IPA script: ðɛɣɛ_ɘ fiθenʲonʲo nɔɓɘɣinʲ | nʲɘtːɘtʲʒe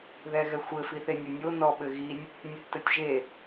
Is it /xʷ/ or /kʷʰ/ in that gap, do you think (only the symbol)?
xʷ